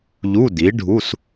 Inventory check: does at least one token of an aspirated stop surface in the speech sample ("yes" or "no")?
no